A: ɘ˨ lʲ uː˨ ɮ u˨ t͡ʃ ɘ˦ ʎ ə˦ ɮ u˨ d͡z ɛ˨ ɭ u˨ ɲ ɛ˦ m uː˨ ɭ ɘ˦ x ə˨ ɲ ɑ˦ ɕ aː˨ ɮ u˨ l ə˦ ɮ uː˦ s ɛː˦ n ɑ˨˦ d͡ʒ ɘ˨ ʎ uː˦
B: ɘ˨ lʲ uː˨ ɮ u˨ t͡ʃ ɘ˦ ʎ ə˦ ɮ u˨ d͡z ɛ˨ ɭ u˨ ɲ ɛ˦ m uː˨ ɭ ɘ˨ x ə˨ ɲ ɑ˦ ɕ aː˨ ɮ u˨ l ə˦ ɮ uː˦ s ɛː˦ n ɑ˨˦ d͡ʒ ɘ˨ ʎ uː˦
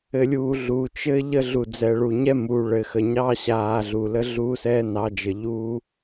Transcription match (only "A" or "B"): B